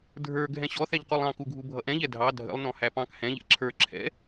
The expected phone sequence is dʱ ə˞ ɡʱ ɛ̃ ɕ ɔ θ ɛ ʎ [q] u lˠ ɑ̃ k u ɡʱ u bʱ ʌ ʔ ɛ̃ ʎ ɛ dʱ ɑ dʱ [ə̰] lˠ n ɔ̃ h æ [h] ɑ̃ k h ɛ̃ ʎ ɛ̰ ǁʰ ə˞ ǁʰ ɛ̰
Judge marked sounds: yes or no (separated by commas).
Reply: yes, yes, no